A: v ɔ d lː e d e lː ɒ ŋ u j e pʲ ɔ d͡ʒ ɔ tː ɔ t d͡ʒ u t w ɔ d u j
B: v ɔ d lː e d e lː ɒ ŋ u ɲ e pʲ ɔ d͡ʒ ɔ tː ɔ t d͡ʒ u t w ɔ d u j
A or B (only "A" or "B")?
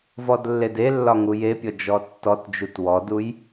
A